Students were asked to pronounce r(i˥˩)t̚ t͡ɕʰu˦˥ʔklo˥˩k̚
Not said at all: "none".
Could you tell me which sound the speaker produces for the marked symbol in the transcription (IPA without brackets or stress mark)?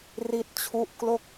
i˥˩